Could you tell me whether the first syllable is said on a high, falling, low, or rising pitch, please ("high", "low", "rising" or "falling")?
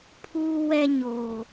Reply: high